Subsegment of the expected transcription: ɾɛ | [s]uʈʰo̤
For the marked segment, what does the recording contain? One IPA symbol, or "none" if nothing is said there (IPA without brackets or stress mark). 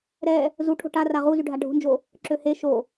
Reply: z